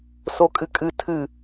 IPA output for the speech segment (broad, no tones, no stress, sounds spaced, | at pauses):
s o kʼ ɨ kʼ ɨ tʰ ɨ